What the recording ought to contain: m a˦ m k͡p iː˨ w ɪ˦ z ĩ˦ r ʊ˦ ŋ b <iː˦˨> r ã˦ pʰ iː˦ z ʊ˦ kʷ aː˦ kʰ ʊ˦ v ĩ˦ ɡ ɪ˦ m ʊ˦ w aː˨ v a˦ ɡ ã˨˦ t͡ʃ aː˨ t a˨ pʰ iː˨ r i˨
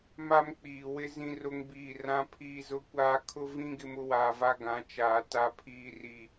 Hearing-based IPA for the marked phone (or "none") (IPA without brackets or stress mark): iː˦˨